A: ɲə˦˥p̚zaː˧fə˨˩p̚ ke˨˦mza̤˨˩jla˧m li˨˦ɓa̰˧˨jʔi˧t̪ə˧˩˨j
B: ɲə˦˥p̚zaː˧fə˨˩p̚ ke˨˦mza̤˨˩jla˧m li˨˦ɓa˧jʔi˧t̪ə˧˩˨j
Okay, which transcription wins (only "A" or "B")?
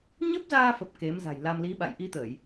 A